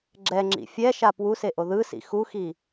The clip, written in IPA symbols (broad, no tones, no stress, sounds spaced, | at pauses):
ɡ͡ǁ ɛ ŋ͡ǁ ḭ fʲ ɛ ʃ a p w u s e ʔ o ð ɯ s ḭ x u x i